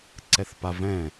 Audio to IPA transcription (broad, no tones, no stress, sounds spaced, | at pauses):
ǀ ɛ θ p a v ɛ̃